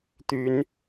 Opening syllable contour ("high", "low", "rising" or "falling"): rising